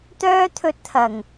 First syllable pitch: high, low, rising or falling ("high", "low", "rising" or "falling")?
high